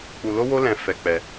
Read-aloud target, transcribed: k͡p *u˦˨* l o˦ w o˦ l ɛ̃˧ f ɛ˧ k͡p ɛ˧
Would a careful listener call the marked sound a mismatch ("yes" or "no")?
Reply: yes